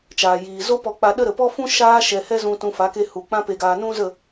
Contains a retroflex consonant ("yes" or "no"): no